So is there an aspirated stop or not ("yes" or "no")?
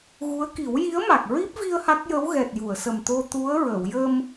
no